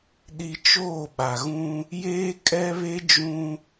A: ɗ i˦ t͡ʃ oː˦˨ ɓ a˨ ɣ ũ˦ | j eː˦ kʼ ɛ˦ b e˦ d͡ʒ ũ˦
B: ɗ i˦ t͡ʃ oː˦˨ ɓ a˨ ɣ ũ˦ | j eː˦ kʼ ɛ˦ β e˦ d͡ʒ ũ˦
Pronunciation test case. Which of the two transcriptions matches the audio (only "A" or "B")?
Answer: B